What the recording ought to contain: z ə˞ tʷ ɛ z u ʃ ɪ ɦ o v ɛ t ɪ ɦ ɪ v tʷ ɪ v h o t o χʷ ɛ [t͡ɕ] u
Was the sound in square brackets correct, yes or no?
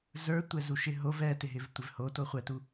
no